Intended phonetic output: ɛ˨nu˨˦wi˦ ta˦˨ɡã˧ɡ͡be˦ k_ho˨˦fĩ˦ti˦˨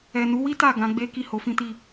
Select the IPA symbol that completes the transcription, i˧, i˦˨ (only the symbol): i˦˨